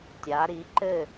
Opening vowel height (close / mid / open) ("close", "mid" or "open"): open